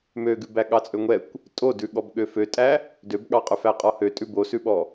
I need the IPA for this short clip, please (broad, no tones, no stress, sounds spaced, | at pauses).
m ø ɡ ʉ b æ ɠ ɑ t͡sʼ ø ŋʷ ɛ kʷ | tʼ o d ʉ ɠ ɔ b ɠ ø f ø tʼ æ | d ø b ɠ ɑ qʼ ɵ f æ qʼ ɔ h ø tʼ ʉ b o s ʉ ɓ ɔ